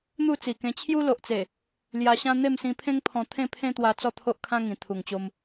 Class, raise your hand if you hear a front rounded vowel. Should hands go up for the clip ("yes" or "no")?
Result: no